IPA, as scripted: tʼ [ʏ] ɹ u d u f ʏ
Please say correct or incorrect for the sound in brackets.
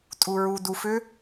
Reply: incorrect